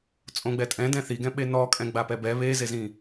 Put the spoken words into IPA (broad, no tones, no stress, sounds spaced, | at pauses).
t͡sʼ õ ɡ͡b ɛ tʼ ɛ̃ d ɛ̃ θ i ɡ ɛ̃ ɓ e n ɔ kʼ ɛ̃ ɡ͡b a p ɛ b ɛ β e z e z ĩ